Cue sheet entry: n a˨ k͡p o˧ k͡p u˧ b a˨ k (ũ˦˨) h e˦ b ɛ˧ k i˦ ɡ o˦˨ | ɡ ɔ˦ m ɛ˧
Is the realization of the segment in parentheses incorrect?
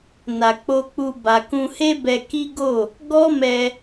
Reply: yes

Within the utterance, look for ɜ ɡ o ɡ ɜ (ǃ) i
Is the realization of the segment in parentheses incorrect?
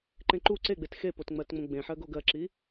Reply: yes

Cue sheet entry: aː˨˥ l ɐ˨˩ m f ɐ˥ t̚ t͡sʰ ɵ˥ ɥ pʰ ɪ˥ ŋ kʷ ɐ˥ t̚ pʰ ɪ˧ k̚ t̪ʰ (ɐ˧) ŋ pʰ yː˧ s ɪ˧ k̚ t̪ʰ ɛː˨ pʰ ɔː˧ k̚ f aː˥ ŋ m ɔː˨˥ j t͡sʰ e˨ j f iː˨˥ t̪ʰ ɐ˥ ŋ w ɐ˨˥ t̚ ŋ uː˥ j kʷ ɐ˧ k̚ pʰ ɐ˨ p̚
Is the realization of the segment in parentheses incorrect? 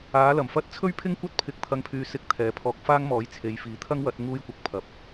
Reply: no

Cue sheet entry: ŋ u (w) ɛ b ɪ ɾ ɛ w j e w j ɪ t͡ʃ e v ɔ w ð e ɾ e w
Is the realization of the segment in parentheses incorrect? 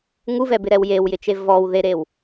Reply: yes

